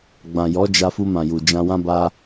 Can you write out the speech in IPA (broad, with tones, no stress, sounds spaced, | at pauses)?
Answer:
ɡ͡b ã˨ j ɔ˨˦ d͡ʒ a˧ f u˧ m ã˨ j u˨ d͡ʒ ã˧ w ã˦ b a˦